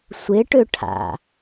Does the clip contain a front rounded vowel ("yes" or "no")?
yes